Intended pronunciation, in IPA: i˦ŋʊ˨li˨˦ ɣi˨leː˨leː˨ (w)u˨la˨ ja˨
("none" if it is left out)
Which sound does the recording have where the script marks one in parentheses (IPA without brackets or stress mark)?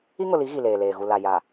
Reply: ɣ